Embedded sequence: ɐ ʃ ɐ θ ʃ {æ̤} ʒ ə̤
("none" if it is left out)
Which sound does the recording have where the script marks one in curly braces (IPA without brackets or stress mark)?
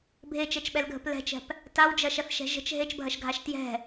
ɛ̤